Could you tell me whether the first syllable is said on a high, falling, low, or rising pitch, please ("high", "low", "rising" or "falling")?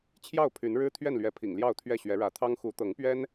falling